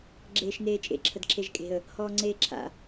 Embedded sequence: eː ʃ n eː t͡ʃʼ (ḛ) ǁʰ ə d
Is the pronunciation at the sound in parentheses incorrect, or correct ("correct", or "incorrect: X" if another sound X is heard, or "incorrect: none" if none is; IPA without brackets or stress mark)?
correct